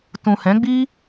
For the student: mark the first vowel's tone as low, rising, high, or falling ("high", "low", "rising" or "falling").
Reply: low